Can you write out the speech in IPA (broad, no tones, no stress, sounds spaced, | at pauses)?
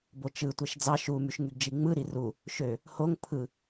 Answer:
b o t͡ʃ ɯ tʷ e ʃ d͡z ɑ ʃ u m y ʃ ŋ y ɡ d͡ʒ i ŋ͡m ɯ ɾ i r u | ʃ ø | h o ŋ pʰ ɯ